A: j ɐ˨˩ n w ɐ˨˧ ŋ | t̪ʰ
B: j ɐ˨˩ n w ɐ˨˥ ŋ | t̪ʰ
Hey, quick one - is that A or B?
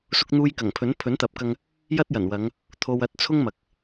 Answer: A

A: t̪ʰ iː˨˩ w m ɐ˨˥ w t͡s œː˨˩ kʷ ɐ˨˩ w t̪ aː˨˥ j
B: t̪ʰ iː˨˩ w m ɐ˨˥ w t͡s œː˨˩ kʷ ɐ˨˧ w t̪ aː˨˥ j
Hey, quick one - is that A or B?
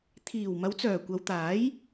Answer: B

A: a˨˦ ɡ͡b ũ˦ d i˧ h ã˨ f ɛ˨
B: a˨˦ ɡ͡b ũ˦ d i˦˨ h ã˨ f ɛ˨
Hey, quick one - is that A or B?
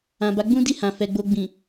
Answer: B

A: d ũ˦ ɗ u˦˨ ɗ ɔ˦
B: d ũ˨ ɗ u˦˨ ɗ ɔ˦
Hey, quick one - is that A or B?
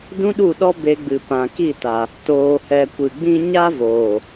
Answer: A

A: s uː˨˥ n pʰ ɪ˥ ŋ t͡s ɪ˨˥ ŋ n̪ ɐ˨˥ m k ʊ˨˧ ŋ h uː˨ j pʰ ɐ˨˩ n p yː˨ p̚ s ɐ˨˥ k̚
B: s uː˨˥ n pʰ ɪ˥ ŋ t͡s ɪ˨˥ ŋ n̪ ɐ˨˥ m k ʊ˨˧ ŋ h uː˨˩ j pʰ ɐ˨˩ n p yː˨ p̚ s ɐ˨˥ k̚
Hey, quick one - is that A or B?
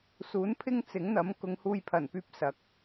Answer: A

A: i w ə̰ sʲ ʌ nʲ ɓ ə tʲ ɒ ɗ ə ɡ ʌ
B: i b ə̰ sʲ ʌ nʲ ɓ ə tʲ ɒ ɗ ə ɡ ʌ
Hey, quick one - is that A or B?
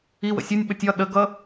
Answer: A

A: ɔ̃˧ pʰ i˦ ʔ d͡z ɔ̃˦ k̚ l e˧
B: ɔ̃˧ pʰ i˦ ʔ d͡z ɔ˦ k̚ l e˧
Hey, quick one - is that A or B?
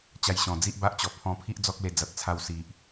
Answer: B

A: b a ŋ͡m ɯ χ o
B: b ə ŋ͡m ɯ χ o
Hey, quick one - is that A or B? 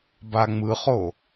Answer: A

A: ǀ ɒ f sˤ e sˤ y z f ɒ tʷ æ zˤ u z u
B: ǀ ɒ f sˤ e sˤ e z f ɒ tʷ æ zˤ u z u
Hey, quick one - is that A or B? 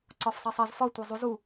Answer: B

